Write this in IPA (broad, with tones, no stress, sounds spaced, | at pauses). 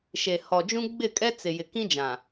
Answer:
ʃ e˨ h ɔ˨ d͡ʒ ũ˦ ɡ͡b ɪ˦˨ kʼ ɛ˦ t͡s ɪ˨ j ɪ˨ k ĩ˦ d͡ʒ ã˨